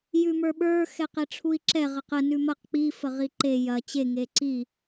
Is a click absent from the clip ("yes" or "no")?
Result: no